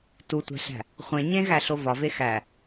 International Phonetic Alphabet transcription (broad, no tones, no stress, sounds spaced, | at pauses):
t u tʷ æ̤ ɬ æ̤ | χʷ ẽ ɲ ẽ ɣ æ ɬ o v ɒ v e x æ